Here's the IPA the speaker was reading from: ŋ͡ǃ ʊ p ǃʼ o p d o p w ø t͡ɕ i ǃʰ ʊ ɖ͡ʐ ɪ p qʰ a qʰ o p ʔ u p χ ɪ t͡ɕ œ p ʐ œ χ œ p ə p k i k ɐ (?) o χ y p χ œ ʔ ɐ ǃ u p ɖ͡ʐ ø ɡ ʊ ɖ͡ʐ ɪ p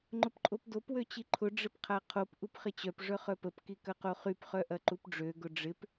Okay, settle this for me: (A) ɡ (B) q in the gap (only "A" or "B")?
B